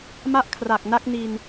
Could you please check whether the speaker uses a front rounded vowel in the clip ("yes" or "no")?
no